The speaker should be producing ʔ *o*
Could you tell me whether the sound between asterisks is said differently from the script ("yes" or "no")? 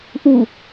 yes